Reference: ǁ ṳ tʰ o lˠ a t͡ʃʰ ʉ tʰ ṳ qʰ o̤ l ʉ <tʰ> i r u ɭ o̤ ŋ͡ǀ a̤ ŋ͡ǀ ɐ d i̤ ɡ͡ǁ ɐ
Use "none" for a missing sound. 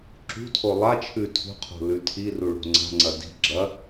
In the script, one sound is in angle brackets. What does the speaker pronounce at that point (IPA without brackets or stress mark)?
tʰ